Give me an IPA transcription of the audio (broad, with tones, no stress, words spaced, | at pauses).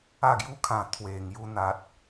a˥˧ɡju˦kʰã˨˩ t̪ʰwe˨˩ŋju˧n̪a˨t̚